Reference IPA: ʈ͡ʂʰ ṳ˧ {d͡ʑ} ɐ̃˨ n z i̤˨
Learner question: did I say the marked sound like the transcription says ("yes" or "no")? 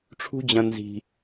yes